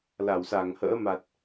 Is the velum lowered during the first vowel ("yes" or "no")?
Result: no